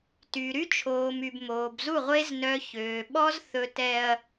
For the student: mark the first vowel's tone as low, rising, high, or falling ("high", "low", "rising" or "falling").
low